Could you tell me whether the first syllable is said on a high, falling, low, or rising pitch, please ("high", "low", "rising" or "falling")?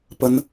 high